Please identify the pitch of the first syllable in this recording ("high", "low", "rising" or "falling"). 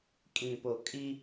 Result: low